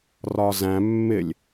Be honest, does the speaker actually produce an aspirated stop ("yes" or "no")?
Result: no